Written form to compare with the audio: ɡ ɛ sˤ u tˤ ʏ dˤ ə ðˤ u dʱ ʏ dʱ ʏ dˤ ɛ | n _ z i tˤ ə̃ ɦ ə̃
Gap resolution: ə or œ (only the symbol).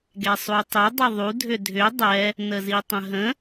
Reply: ə